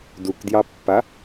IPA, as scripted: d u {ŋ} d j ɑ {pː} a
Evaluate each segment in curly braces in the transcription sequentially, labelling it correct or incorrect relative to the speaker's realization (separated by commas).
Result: incorrect, correct